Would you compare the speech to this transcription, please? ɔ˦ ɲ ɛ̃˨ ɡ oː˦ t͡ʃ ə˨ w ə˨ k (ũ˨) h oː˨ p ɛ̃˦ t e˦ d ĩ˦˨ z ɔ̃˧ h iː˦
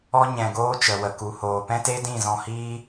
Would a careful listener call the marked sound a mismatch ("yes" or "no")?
yes